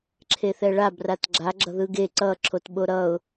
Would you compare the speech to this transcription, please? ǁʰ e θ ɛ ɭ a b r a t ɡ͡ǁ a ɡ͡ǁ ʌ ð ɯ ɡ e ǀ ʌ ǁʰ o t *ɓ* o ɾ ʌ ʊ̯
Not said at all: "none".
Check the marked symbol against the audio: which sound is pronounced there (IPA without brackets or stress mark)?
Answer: ɓ